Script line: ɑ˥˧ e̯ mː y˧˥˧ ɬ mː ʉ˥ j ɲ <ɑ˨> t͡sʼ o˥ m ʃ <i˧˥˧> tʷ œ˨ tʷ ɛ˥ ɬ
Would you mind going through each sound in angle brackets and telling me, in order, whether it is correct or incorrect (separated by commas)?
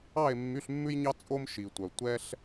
incorrect, incorrect